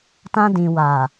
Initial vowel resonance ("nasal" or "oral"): nasal